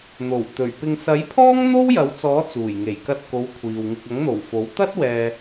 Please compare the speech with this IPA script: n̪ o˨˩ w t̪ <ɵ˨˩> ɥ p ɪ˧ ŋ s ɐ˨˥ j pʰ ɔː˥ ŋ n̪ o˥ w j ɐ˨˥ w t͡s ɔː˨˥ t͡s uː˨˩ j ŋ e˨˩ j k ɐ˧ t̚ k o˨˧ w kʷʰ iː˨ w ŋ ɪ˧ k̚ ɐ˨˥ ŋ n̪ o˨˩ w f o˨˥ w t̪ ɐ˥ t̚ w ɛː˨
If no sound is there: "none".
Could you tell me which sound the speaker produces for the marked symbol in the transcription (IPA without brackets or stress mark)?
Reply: ɵ˨˩